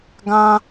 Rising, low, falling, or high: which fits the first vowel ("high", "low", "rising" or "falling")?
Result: high